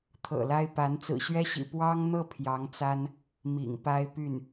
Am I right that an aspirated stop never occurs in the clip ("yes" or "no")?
no